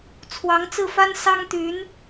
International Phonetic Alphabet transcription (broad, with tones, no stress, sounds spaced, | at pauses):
t͡sʰ w ɑ˧˥ ŋ t͡s ɹ̩˥˩ f a˥ n s ɑ˥ ŋ t̪ y˧˥ n